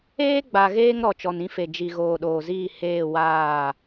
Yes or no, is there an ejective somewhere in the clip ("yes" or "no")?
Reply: no